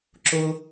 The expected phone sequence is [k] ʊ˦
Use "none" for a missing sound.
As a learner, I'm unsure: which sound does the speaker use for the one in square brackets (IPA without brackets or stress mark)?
ǁ